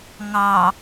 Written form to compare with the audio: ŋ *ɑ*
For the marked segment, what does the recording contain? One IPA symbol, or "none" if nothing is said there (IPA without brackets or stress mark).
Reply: ɑ